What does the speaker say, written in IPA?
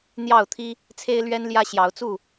n̪ j ɑ˥˨ ʊ̯ t̪ʰ i˦ | t͡sʰ e˦ ɪ̯ l ɥ ɛ˦ n l j ä˦ ɕ j ɑ˨˦ ʊ̯ t͡s u˥˨

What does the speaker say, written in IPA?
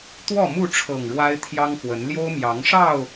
t̪ w ɔ˥˨ m u˥˨ ʈ͡ʂʰ ɤ˨˩ ŋ ɻ w a˦ ɪ̯ t̪ʰ j ɑ˦ ŋ x w ə˨˦ n l j o˦ ʊ̯ m j ɑ˨˦ ŋ ʂ ɑ˥˨ ʊ̯

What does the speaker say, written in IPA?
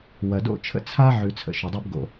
w ɐ˩ d o̰˥ t͡ʃʰ ə̰˥ t͡sʰ a˥ ʕ ʉ˨ t͡sʰ ə̰˨ ʃ ʉ˩ dˤ o˥ b ɡ o̰˨

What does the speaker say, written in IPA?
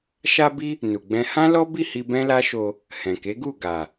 ʃ a˧ b i˧ | n u˨ ɡ͡b ɛ̃˧ h ã˦ l ɔ˦ b i˦˨ h i˧ b ɛ̃˦ l a˦ ʃ o˧ | h ɛ̃˨ k e˨˦ ɡ u˦˨ ɡ a˨

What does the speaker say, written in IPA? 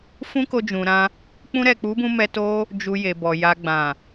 f ũ˦ k o˧ d͡ʒ ũ˨ ɾ ã˧ | k͡p ũ˧ ɾ ɛ˨ k͡p u˨˦ b ũ˧ m ɛ˧ t o˦ | d͡ʒ u˧ j e˨ b ɔ˨ j a˨ ɡ͡b ã˨

